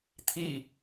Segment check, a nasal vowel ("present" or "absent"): absent